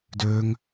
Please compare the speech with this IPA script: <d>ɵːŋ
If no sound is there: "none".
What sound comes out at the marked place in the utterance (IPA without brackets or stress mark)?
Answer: d